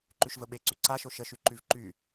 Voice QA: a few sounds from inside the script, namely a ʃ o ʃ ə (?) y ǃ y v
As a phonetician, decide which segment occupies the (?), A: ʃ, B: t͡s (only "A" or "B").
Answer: A